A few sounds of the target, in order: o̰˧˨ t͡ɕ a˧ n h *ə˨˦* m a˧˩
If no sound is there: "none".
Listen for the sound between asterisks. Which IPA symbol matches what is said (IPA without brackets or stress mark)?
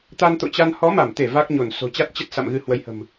ɔ˨˦